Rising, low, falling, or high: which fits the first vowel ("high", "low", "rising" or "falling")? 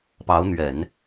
rising